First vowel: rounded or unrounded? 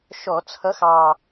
rounded